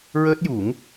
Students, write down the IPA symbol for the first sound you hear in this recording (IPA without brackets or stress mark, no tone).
ɹ